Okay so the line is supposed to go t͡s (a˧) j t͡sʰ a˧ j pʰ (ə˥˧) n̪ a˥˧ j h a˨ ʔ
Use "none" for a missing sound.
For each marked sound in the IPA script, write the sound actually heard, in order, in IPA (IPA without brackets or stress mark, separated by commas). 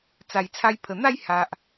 a˨˩, ə˨˩